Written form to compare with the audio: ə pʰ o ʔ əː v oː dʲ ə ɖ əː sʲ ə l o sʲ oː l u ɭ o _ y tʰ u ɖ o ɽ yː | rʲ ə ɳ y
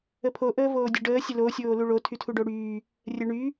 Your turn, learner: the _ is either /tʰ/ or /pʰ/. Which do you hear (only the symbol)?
tʰ